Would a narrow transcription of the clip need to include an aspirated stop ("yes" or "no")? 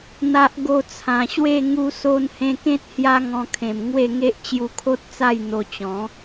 yes